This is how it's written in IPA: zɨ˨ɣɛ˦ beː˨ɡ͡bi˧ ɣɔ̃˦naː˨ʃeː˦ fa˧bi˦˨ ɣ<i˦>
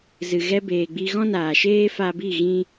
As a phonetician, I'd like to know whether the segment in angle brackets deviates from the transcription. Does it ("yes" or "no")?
yes